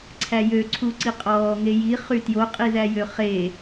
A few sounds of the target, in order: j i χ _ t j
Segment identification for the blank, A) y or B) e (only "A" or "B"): A